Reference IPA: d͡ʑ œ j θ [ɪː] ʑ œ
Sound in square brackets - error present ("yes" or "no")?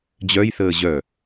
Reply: yes